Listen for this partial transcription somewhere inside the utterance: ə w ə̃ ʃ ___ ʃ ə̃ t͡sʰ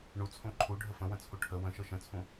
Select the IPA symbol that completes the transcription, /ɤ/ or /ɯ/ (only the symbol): ɤ